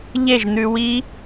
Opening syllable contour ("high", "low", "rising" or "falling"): falling